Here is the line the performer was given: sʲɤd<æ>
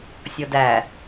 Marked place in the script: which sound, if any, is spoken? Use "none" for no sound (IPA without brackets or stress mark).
æ